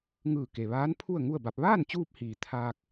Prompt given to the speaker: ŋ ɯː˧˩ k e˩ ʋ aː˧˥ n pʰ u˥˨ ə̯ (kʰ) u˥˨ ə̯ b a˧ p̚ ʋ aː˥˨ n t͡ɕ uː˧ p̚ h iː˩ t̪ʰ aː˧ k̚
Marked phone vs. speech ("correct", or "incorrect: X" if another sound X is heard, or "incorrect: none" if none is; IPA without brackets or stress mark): incorrect: ŋ